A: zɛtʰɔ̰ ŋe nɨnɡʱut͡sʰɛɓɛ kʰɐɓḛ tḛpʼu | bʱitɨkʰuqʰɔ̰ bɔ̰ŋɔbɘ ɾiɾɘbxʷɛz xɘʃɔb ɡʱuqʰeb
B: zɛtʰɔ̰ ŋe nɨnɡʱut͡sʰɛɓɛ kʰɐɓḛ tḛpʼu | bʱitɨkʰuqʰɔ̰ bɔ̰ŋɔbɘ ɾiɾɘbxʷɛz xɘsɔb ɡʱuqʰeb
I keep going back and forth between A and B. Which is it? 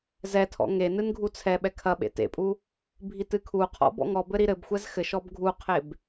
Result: A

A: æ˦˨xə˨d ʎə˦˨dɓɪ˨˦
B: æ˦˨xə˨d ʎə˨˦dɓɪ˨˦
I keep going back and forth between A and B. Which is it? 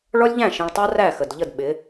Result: A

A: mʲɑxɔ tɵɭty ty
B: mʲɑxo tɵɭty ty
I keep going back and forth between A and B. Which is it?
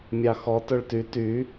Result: A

